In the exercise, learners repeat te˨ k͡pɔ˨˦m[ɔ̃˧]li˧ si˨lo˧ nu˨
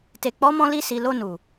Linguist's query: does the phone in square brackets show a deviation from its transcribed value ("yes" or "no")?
no